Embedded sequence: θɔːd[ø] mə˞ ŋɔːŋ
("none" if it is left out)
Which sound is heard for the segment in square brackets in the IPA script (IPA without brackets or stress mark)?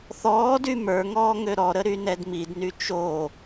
y